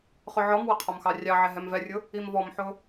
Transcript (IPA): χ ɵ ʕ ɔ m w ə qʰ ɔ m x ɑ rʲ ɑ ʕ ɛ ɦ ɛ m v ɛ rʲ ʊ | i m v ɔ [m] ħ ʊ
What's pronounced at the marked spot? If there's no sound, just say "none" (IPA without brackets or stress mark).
m